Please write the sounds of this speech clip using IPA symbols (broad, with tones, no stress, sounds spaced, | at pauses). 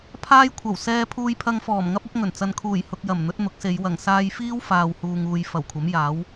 pʰ aː˥ j kʷʰ ɐ˨˩ w s ɛː˧ pʰ uː˧ j pʰ ɐ˧ ŋ f ɔː˨˩ m ŋ ɐ˥ p̚ ɐ˥ p̚ ŋ ɵ˨˩ n t͡s ɐ˨ n kʰ uː˨˩ j h ʊ˨ k̚ j ɐ˨˩ m n̪ ɵ˨˥ t̚ n̪ ʊ˨˥ k̚ s e˨˧ j w ɐ˨˩ ŋ s aː˧ j f iː˥ w f aː˨ w h uː˨ ŋ uː˨ j f ɐ˨˩ w kʷʰ ɐ˨˥ m j aː˨˥ w